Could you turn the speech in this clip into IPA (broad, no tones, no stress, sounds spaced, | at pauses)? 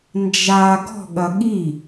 n d͡ʒ a ɡ ɔ̤ ɠ ɐ ɠ i